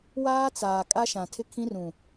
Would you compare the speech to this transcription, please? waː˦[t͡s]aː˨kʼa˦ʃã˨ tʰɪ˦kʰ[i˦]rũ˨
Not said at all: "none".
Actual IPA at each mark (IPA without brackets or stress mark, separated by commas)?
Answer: t͡s, ĩ˦